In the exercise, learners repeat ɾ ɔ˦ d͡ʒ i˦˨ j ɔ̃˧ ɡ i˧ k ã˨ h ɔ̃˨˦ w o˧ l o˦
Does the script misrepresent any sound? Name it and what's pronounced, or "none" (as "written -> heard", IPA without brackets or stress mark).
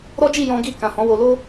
none